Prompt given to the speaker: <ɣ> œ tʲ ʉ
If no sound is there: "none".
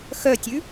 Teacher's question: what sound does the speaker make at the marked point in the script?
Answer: x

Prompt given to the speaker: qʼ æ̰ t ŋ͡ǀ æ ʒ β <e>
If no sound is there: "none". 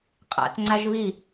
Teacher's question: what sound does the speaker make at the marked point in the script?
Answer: i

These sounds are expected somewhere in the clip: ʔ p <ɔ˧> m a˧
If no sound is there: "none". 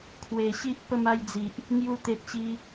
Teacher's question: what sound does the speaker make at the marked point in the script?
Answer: ə˧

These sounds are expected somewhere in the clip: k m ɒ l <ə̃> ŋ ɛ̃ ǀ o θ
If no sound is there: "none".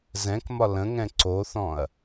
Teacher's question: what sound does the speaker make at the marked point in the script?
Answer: ə̃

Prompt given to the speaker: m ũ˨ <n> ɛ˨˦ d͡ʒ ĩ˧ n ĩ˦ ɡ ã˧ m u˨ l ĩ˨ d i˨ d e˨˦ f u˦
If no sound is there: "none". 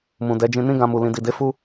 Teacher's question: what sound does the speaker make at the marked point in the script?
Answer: d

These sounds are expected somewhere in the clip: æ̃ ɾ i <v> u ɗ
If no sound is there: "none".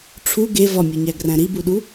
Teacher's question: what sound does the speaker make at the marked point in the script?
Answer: b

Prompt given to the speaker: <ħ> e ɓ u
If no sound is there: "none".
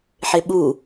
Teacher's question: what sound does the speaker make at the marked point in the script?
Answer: ħ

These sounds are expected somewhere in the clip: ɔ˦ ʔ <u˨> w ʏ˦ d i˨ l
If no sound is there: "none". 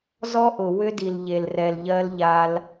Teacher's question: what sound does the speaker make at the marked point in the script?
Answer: ʊ˨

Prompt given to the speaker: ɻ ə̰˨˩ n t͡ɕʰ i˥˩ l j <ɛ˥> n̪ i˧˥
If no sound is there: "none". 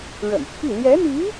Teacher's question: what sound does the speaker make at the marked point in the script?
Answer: ɛ˧˥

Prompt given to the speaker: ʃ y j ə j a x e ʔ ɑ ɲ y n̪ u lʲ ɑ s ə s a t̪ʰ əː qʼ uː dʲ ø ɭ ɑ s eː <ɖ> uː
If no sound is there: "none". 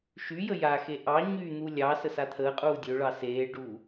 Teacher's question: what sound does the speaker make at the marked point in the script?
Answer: ɖ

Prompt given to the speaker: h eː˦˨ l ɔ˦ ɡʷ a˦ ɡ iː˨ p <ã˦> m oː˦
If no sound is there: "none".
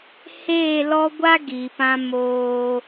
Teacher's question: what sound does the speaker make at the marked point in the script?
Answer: ã˦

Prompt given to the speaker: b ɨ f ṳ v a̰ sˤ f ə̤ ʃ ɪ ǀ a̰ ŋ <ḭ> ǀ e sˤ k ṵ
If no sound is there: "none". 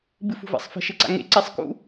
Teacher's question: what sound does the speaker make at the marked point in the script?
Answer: ḛ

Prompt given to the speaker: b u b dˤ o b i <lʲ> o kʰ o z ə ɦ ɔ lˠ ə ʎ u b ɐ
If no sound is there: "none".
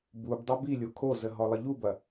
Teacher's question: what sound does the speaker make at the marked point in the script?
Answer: lʲ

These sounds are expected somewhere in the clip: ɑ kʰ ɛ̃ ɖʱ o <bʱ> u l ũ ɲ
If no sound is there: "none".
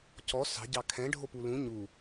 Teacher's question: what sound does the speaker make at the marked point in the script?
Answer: p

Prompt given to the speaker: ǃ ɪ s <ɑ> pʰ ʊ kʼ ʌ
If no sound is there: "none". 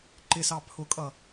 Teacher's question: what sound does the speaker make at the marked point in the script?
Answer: ɑ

